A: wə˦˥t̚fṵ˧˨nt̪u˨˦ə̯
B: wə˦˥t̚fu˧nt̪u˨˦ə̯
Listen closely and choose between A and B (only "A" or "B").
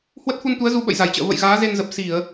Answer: B